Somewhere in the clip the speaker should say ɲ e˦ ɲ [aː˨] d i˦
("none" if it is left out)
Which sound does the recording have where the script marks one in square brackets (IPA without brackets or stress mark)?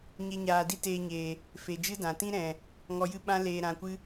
aː˧